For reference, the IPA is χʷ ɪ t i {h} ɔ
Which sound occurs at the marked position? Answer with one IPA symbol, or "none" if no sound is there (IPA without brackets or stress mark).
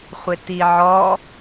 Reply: ʕ